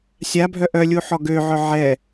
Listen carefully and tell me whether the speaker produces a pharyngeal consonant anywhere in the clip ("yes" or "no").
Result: yes